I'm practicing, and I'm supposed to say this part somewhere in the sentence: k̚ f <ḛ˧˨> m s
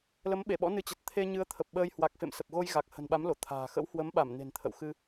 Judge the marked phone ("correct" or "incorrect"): correct